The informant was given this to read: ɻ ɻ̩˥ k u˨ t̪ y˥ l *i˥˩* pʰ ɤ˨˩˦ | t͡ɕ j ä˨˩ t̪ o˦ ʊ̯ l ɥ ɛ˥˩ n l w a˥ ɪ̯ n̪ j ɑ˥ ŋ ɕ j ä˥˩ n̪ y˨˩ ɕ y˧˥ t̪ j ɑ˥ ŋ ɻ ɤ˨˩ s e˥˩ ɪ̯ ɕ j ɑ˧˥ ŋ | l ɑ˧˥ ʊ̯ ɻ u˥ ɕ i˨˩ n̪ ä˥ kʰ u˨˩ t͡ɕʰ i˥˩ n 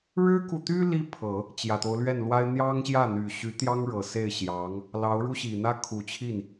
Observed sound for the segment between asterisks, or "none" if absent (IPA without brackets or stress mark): i˥